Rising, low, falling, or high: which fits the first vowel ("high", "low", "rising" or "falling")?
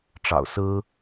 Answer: low